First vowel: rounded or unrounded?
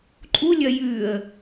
rounded